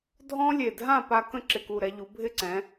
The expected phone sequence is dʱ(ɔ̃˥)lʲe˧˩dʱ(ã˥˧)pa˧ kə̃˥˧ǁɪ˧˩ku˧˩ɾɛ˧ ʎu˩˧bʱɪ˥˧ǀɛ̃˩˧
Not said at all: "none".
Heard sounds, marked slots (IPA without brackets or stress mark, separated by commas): ɔ̃˥, ã˥˧